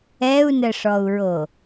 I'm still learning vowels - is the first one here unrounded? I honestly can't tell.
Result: yes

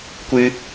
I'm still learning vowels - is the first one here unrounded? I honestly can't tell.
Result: yes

